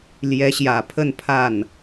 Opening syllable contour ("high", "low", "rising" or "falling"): rising